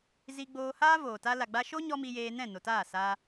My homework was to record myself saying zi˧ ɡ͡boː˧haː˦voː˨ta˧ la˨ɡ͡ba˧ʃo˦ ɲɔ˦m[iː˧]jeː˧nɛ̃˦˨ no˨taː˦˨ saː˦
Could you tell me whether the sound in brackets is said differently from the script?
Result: yes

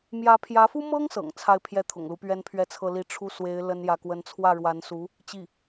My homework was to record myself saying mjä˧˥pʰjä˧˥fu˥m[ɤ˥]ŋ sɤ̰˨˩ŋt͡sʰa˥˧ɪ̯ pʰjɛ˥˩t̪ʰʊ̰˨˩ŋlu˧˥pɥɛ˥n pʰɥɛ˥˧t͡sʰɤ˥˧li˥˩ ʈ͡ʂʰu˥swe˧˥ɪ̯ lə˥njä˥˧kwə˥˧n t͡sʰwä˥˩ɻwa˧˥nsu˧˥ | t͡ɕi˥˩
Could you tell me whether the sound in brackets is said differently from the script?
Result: no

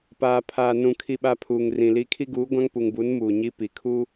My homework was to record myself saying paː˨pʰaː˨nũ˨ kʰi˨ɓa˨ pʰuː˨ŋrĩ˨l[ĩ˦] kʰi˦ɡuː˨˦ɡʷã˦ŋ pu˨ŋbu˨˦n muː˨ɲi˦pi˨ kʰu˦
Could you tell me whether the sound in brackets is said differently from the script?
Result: yes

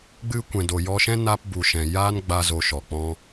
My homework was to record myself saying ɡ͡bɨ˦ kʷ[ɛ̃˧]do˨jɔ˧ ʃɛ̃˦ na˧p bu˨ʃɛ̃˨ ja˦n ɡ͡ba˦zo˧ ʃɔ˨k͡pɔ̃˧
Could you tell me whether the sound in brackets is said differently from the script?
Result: yes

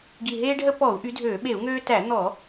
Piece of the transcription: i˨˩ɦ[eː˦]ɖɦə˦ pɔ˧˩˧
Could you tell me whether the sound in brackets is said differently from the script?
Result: no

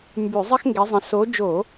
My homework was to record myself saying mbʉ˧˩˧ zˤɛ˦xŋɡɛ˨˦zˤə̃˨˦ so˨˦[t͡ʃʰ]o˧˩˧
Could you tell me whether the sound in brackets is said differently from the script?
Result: yes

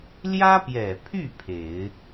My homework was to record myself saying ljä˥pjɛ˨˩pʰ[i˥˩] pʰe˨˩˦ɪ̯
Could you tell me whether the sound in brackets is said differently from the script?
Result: yes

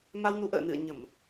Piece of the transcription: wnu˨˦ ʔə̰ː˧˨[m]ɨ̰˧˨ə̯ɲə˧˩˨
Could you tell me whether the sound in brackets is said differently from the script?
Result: yes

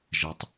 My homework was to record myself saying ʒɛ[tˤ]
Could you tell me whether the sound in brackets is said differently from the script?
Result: no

